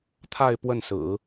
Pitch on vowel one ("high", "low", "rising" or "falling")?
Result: falling